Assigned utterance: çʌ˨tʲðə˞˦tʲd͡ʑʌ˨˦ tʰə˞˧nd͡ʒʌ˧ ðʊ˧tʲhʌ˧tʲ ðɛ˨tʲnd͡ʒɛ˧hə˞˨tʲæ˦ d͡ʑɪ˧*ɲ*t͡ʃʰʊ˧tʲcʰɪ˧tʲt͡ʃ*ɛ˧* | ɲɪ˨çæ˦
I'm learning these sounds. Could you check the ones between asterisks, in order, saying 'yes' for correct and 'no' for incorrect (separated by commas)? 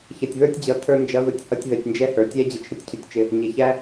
no, no